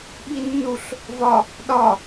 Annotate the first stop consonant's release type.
implosive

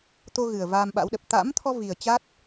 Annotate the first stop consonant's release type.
plain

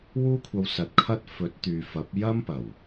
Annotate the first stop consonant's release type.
aspirated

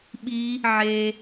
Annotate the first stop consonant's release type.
implosive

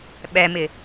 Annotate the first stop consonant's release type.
implosive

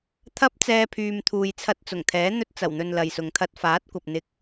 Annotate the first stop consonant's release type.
aspirated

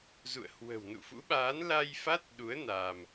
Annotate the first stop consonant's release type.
implosive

